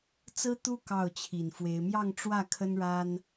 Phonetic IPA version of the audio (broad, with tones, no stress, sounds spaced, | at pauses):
t͡s ɹ̩˥ t̪ u˥ k ɑ˥˩ ʊ̯ t͡ɕʰ i˨˩ n f w e˧˥ ɪ̯ m j ɑ˥˧ ŋ ʈ͡ʂ w ä˥˩ kʰ ə˥ n ɻ a˥ n